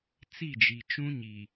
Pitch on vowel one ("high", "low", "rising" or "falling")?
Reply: falling